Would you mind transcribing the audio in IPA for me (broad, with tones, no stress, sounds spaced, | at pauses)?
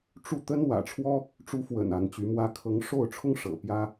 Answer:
ʈ͡ʂ u˥˩ t̪ ə˥ n w ä̰˨˩ ʈ͡ʂʰ w ɔ˥ | ʈ͡ʂ u˧˥ f w ə̰˨˩ n a˧˥ n t͡ɕ y˧˥ m w ä˥ kʰ ɤ˧˥ ŋ ʂ o˥˩ ʊ̯ ʈ͡ʂʰ ʊ˥ ŋ ʂ ɤ̰˨˩ p j ä˥